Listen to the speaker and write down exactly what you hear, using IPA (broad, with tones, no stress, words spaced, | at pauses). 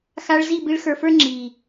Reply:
xa˧ɭ zi˦˨bi˧ɭxə˞˨fə˞˦ ŋ͡ǁi˨